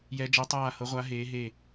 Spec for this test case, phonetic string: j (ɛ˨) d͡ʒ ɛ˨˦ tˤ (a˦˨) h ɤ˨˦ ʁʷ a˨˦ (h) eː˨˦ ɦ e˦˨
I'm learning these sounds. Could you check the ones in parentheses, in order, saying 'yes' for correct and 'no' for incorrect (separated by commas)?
no, no, no